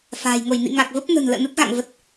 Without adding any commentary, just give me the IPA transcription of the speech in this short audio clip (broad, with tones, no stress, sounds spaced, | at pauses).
f a̤ː˨˩ j ŋ o˧˩ j n ḭ˧˨ ŋ a˨˩ k̚ v ə˦˥ p̚ n ə̤˨˩ n l ə̰ː˧˨ n ə˦˥ t̚ ɣ a̰˧˨ ŋ v ə˨˩ t̚